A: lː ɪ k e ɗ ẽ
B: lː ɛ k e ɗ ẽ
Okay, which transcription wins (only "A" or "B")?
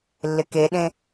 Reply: A